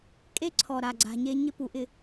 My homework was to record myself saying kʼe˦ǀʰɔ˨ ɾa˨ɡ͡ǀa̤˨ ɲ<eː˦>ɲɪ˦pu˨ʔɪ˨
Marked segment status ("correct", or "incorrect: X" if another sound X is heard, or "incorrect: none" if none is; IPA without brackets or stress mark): incorrect: e˦